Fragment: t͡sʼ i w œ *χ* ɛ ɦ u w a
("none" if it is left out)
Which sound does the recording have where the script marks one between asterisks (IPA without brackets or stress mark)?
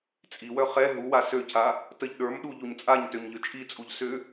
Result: χ